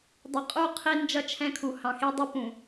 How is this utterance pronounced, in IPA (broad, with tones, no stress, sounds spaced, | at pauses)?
dˤ ʌ˨ qʼ u˦˨ qʰ i˦ n d͡ʒ ʌ˦ t͡ʃʰ ɛ̃˦ kʰ u˨ h ɑ̃˨ x i˦ dˤ ʌ˦ p ũ˨